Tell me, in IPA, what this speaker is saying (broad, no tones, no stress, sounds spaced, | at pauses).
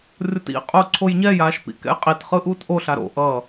rʲ o t ḭ qʼ uː ǀʰ o j ɲ ɛ j aː ʃ p ḭ k ɛ̰ j qʼ i t χ ɯ ʔ uː t ʔ o ɬ a ɾ o̰ ʔ ʌː